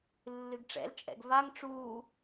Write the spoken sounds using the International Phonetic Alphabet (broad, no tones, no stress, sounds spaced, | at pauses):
lː ɨ ɡ ʈ͡ʂ ɛ̰ l t͡ʃʼ ɛ̰ ɡ v a ŋ ʈ͡ʂ u